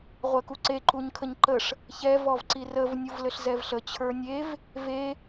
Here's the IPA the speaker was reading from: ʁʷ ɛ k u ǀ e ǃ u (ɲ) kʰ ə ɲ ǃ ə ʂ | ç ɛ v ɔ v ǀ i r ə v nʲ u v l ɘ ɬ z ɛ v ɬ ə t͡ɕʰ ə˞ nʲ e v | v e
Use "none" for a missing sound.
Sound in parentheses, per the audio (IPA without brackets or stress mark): ɲ